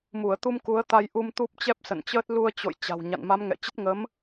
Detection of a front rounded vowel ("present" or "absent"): absent